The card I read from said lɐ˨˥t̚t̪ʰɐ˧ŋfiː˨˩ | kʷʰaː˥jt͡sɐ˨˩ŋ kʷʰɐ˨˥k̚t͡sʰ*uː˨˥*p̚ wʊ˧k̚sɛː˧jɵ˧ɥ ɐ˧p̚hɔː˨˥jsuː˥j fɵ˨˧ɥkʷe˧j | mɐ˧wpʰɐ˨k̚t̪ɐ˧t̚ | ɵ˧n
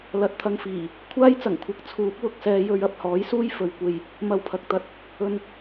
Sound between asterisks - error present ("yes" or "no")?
no